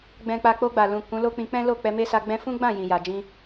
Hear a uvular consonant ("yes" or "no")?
no